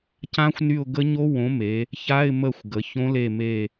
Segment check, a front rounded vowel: present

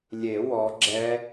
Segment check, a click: present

